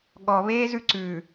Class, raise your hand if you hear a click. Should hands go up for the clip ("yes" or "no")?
yes